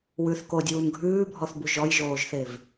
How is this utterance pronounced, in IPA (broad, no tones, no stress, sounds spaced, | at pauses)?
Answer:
w ʉ θ k o dʲ uː n ɡʱ ʉː bʱ ɔ θ b u ʒ ɔ j ʒ oː ʒ θ e v